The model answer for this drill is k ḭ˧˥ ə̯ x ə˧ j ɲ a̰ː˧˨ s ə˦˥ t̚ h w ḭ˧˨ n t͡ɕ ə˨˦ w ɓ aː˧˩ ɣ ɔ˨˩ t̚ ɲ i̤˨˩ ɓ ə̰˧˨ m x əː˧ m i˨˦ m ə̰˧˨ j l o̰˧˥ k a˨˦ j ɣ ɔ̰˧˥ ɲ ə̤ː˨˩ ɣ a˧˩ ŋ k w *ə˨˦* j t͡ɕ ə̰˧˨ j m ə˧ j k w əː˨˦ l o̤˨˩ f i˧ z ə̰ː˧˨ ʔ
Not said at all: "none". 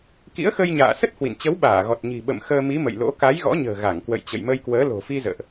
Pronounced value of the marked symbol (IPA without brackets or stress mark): ə̰˧˨